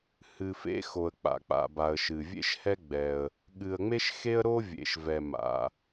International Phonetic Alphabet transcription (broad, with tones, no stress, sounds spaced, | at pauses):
h ɨ˩ f ḛ˦ x o˩ ə̯ k͡p a̰˩ k͡p a̰˩ b a˩ ə̯ ʃ ɨ˩ vʲ ḛ˦ ʃ h ɛ˦ ɡ͡b ɛ˩ ə̯ | ɠ ɨ˩ ə̯ ŋ͡m e˦ ʃ x e˦ ə̯ ɾ o˦ vʲ ḛ˩ ʃ v ɛ˩ m a̰˩